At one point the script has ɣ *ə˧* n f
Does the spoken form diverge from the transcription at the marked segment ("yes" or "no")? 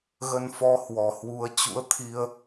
no